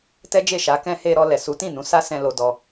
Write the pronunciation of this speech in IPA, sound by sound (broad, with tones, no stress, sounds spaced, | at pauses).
t ɛ˦ d͡ʒ e˦˨ ʃ a˨˦ k ɛ̃˦ h e˧ ɾ ɔ˧ l ɛ˨ s u˨˦ t ĩ˦˨ n ũ˨˦ s a˦ s ɛ̃˧ l o˧ d ɔ˧